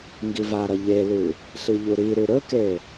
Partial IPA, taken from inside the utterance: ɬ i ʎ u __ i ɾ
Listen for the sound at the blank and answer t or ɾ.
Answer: ɾ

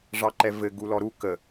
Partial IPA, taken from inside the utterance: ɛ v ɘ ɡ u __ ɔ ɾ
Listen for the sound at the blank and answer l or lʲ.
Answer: l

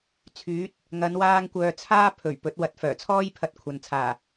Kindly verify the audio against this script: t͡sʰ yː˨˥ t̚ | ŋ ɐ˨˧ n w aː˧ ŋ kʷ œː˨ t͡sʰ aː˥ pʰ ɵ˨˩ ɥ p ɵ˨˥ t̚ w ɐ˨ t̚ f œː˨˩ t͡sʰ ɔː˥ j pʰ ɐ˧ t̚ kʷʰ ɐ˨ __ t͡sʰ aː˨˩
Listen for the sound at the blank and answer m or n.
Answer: n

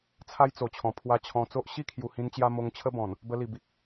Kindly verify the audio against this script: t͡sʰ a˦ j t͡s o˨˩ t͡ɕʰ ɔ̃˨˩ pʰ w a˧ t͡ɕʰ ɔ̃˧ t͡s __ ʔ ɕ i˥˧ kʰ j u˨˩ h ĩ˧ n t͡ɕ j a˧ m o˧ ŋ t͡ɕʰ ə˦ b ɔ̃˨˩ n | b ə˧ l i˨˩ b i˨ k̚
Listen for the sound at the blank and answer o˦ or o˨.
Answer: o˦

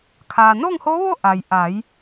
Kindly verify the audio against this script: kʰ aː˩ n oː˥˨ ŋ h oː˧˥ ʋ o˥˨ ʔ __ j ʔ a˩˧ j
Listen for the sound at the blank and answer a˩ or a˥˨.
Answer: a˩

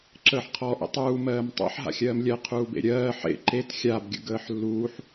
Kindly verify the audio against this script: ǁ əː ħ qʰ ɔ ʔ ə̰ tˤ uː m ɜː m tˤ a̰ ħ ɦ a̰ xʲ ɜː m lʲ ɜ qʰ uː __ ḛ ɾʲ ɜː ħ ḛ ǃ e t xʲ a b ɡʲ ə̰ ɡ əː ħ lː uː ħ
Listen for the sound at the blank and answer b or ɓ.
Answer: b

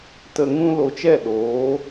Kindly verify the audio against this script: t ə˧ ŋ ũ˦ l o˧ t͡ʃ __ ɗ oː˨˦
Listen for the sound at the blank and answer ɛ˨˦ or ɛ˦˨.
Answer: ɛ˦˨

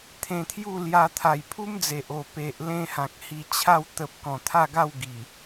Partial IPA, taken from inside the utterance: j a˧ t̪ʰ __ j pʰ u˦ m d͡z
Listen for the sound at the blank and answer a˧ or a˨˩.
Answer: a˨˩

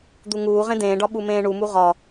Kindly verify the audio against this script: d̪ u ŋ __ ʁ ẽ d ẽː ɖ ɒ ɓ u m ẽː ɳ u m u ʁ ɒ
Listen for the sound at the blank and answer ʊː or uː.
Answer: uː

